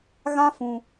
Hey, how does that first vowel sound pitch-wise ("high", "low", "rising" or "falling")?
high